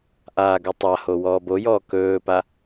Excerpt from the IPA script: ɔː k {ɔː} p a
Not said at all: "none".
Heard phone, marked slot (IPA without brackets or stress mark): ɵː